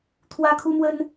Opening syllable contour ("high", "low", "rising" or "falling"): high